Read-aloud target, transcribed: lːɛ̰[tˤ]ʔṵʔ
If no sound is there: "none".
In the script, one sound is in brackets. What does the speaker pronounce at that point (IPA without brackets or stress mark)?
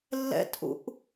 t